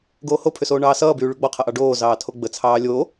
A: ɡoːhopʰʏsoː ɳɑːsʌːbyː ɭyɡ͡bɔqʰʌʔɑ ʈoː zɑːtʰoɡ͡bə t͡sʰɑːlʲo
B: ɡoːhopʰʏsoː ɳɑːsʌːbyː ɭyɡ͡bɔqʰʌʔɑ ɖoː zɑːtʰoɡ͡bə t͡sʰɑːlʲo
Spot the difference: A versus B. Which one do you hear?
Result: B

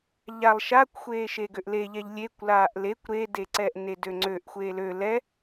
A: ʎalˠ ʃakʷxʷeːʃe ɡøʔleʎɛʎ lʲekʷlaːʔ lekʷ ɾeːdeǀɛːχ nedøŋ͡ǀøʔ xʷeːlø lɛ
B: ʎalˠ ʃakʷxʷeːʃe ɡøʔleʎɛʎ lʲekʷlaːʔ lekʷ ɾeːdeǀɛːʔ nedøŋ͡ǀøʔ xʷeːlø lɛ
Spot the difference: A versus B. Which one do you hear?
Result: B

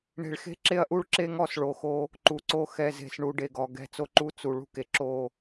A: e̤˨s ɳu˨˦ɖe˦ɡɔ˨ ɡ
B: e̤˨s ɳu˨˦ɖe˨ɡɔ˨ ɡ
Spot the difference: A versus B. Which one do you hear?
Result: B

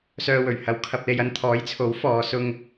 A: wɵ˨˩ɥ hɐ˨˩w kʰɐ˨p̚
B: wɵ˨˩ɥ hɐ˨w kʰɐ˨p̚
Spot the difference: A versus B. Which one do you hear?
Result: B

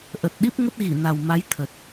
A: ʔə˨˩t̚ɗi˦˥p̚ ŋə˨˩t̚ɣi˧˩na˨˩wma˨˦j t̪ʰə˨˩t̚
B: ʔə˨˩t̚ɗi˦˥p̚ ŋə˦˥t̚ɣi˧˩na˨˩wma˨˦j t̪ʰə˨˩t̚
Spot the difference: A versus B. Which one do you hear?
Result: B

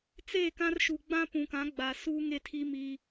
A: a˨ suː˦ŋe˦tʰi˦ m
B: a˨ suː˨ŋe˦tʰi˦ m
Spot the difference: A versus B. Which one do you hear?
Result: A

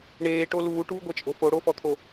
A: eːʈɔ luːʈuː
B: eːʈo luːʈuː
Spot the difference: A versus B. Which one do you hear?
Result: B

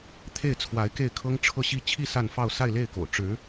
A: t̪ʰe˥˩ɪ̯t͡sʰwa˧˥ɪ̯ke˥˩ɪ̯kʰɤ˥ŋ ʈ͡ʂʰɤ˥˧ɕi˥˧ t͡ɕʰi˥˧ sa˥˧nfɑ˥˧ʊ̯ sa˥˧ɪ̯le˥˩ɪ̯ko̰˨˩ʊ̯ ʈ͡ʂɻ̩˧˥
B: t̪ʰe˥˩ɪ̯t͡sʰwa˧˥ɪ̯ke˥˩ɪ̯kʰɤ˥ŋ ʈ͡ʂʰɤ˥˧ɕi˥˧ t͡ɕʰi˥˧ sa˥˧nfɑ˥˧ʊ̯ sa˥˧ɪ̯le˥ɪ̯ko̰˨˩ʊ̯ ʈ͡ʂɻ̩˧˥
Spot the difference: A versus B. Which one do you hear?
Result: A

